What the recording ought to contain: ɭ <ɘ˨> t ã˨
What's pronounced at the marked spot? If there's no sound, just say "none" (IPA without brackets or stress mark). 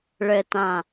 ɘ˨